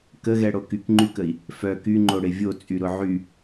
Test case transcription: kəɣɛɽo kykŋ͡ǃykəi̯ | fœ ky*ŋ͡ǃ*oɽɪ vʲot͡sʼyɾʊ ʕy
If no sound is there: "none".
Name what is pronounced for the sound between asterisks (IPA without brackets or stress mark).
ŋ͡ǃ